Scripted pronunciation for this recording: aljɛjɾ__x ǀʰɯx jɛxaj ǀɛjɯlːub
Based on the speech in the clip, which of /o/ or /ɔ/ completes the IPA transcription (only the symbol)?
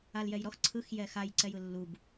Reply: ɔ